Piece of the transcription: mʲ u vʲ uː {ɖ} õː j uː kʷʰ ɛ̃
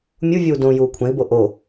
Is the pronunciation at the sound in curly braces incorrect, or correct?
incorrect